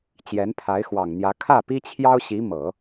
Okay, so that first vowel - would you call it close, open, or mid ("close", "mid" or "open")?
mid